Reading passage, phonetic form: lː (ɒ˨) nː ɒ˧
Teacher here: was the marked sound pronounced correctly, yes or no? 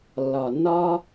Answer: yes